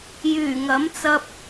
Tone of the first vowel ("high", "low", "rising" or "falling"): low